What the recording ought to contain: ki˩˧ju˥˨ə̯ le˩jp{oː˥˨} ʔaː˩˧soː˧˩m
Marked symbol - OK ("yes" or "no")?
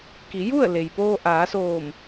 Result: no